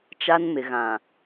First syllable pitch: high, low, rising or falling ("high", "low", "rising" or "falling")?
high